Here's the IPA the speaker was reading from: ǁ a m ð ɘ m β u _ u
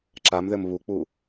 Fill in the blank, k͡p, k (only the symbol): k͡p